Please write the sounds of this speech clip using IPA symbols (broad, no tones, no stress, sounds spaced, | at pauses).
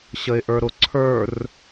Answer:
ɕ ə ɪ̯ ʔ ə˞ ɾ ʊ ǀʰ ə˞ r